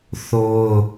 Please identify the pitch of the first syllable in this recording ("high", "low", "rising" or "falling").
high